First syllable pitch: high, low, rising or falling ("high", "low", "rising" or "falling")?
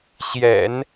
low